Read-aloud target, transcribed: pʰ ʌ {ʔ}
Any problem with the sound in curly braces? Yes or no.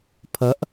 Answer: no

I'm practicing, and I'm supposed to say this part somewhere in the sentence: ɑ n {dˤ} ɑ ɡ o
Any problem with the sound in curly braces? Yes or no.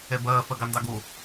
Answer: yes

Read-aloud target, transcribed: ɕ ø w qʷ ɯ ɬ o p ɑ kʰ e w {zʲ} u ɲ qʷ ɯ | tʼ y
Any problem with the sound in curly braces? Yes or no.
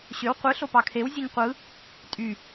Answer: no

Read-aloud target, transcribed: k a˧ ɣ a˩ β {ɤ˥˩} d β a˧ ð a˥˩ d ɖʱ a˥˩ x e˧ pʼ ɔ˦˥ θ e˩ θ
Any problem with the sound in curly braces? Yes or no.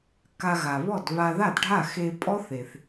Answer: yes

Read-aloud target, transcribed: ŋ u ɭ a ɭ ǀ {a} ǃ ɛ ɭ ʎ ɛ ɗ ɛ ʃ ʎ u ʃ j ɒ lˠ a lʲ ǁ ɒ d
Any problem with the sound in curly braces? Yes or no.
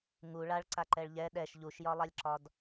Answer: no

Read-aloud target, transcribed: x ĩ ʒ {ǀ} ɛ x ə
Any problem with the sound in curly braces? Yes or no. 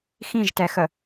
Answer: yes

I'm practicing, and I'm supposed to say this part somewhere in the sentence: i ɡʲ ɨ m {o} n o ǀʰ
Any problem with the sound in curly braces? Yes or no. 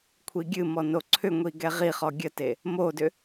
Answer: yes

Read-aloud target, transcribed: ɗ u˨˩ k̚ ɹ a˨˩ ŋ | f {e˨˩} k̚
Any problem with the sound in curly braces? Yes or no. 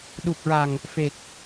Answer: no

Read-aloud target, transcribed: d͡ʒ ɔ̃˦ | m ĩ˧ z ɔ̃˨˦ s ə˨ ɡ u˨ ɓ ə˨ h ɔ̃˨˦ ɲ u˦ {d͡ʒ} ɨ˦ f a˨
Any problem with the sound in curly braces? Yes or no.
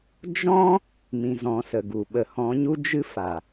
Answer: no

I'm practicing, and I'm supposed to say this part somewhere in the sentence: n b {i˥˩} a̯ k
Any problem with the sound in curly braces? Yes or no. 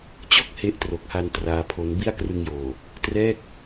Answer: no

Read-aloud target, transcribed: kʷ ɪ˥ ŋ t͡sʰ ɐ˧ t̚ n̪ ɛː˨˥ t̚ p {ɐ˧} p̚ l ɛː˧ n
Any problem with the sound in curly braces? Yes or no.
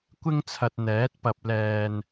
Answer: no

